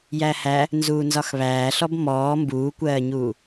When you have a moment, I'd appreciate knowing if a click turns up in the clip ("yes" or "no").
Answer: no